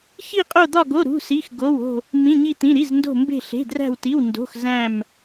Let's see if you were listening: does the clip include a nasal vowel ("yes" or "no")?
yes